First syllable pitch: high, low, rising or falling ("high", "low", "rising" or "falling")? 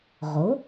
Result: rising